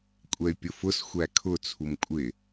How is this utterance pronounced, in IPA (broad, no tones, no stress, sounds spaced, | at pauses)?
kʷʼ ɛ y̯ pʲ ʊ f ʊ s xʷ æ kʰ ʊ t͡sʰ u m kʷʼ ɪ